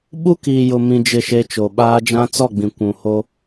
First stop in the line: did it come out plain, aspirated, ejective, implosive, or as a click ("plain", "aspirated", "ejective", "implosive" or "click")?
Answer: implosive